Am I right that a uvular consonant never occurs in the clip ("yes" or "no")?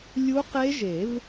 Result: no